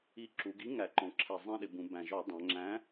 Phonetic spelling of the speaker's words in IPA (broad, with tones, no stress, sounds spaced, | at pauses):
i˨˥ ǁ u˩˧ ɡ i˨˥ ŋ æ˨˩ ǃ ɔ̃˩˧ ǁʰ ɛ˨˩ zˤ ɛ̃˦˨ ɗ ɪ˩˧ b ũ˩˧ b æ̃˨˩ ʒ ɔ˧˩˧ dˤ æ̃˩˧ ŋ͡ǁ æ̃˨˥